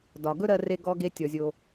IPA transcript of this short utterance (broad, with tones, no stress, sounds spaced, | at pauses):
d ɒ˩ ɡ ɵ˥ ɾ ɜ˧ r e˧ ɡ ɔ˧ ɡ e˧ tʲ ɔ˩ zʲ o˩